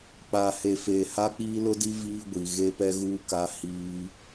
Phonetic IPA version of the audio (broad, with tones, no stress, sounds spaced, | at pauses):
k͡p a˨ h e˨ f eː˨ h a˦ k͡p iː˦ l ʊ˦ d i˦ v iː˦ ɡʷ i˨ ɣ e˦ p ɛ˦ ɣ uː˦ k a˦ h iː˦